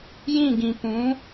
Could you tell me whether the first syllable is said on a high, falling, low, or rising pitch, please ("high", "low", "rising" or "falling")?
falling